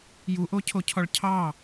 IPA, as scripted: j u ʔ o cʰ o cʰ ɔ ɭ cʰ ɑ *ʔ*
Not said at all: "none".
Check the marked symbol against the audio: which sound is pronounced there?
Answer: none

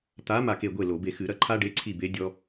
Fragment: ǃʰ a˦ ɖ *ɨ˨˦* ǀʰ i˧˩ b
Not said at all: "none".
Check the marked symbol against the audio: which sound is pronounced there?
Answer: e˨˦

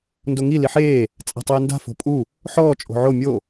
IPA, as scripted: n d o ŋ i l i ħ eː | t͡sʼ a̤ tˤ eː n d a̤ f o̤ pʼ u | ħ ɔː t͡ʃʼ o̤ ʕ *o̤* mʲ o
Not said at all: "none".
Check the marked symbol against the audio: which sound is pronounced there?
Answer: o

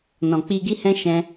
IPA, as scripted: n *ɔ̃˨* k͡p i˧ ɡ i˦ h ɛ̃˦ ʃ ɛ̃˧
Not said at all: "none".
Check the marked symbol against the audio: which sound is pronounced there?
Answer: ɔ̃˨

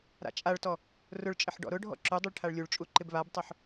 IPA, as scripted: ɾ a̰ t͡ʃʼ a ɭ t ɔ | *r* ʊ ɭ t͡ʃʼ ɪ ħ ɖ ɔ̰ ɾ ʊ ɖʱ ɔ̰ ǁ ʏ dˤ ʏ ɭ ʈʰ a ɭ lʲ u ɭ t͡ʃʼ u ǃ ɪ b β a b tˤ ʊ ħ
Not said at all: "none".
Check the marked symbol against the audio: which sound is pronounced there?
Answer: r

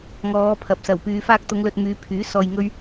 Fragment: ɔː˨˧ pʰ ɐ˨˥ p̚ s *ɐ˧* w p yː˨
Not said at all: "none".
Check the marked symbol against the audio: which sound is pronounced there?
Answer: ɐ˨˩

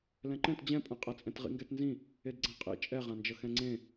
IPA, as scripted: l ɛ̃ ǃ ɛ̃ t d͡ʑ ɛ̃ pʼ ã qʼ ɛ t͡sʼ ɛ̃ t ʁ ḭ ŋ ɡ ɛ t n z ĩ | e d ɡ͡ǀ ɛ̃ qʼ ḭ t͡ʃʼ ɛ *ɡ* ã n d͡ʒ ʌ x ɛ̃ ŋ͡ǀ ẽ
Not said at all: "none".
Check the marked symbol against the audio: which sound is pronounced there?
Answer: ʁ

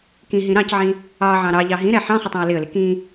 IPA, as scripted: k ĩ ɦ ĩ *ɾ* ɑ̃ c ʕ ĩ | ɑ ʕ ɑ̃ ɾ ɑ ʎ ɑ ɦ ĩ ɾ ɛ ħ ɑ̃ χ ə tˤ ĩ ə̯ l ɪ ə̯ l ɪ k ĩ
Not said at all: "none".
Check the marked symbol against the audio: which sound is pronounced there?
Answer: ɾ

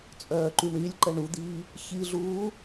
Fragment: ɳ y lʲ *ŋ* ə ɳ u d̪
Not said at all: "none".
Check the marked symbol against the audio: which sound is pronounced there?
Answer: ǃ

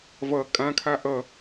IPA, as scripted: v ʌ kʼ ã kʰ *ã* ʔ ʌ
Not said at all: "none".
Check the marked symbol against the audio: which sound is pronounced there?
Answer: a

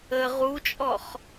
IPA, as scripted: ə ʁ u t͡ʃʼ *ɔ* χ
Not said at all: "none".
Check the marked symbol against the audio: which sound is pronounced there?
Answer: ɔ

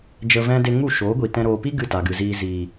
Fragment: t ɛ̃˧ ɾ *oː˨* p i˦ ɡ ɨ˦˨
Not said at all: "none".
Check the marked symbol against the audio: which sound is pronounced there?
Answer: oː˨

